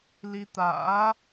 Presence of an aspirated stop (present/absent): absent